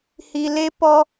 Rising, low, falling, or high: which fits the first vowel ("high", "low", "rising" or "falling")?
low